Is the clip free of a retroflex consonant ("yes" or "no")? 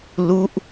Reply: yes